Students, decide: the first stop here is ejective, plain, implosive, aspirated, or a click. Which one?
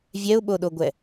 implosive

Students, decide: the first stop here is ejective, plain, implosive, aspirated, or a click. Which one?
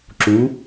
click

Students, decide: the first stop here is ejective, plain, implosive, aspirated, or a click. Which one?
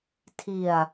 aspirated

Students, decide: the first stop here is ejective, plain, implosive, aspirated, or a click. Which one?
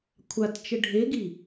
aspirated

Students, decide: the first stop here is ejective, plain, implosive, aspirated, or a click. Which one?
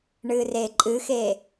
click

